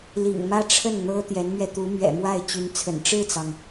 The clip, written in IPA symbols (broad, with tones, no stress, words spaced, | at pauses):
lḭ˨˩ŋmä˥˧ʈ͡ʂʰə˥˩n n̪ɤ˥t̪jɛ˧˥nmɥɛ˧ t̪u˧˥mɥɛ̰˨˩mwa˥˩ɪ̯ t͡ɕy˧˥nt͡sʰə̰˨˩n ʈ͡ʂɻ̩˥˩t͡sɑ˩ŋ